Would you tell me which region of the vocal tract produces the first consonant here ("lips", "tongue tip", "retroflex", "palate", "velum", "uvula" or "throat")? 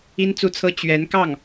tongue tip